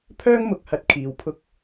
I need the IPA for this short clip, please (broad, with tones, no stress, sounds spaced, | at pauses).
pʰ œː˥ ŋ m ʊ˨˥ k̚ h ɐ˨ t̚ kʰ iː˨˧ w pʰ ʊ˥ k̚